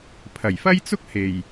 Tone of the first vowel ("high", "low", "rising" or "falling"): low